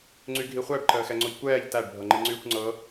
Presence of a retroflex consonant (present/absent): present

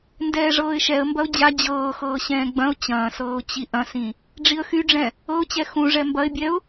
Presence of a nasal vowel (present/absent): present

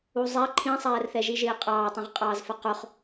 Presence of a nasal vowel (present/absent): present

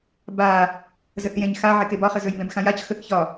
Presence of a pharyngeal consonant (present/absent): present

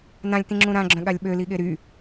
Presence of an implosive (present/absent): present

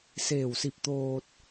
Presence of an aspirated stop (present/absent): absent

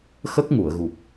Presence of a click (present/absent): absent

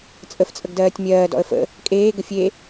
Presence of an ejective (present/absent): present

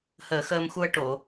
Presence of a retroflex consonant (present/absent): present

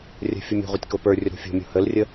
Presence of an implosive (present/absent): absent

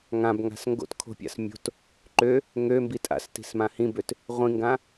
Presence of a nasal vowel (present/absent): present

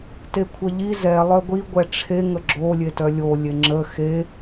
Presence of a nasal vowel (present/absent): absent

